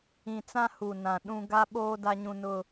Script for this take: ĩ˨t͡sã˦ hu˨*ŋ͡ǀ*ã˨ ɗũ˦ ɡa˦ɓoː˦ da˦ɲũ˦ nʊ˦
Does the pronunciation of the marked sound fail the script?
yes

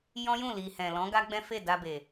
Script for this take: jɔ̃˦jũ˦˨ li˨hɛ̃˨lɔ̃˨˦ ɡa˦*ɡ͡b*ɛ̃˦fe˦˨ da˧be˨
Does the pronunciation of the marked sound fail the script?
no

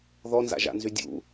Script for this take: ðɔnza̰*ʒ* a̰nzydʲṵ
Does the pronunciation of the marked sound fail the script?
no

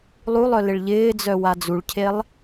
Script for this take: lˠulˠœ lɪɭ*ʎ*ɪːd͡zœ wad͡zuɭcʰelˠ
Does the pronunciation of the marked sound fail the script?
no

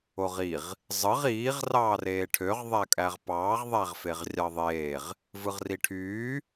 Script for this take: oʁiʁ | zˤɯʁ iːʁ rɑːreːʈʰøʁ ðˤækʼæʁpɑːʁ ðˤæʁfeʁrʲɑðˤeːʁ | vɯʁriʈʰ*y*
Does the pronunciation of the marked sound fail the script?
yes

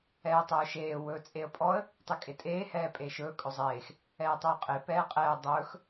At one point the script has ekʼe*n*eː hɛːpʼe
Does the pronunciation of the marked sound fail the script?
yes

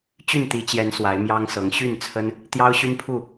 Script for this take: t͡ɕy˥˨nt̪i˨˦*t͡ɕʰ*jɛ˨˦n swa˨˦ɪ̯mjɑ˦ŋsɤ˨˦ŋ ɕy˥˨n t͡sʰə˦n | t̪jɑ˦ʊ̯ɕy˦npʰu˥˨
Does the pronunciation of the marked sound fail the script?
yes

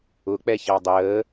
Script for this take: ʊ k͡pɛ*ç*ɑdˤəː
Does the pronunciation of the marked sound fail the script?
no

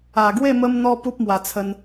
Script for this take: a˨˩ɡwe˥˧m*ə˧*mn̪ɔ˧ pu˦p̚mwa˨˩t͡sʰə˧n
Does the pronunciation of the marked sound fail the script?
no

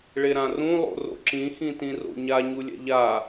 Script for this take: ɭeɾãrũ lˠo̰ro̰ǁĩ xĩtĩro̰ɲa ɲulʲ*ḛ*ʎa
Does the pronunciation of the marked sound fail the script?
yes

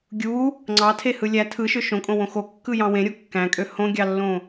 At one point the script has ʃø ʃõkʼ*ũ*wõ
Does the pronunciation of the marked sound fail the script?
yes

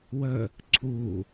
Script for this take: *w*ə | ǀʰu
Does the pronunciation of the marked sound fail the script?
no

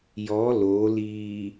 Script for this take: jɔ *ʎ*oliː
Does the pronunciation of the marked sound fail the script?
yes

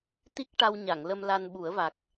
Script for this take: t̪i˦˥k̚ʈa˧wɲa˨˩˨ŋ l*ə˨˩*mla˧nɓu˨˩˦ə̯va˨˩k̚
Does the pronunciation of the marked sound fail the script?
yes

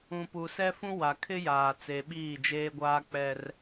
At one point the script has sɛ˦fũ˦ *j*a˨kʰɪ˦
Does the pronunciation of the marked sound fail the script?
yes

